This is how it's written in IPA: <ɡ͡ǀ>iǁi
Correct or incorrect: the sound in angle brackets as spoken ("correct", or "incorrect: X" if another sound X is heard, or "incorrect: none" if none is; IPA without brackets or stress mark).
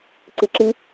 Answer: incorrect: ǀ